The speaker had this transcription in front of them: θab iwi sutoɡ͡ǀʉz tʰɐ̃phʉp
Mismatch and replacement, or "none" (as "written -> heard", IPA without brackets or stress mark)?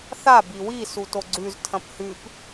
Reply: none